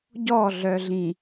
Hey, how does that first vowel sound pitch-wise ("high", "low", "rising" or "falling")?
falling